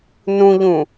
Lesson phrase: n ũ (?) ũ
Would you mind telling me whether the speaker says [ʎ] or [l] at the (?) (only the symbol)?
ʎ